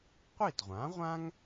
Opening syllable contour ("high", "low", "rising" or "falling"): falling